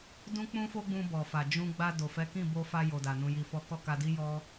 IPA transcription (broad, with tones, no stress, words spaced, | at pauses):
dũ˦k͡pũ˦fo˦ ɡ͡bũ˧bɔ˨fa˨ d͡ʒũ˧ ɡ͡ba˧ do˨fɛ˨˦kĩ˦˨bo˧ fa˧jo˨da˨ nũ˧ji˧fɔ˦ kɔ˦˨ka˧di˦ jɔ˦